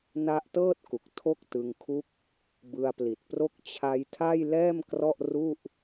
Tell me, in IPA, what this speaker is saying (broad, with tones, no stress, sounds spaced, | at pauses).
n a˦˥ ʔ t ɤː˥˩ t̚ k u˨˩ k̚ tʰ o˥˩ k̚ t ɯ˧ ŋ kʰ u˥˩ k̚ | b ɯ˧ a̯ p l i˨˩ t̚ p r o˥˩ k̚ t͡ɕʰ a˧ j tʰ a˥˩ j l ɛː˥˩ m k r ɔ˥˩ ʔ r u˥˩ ʔ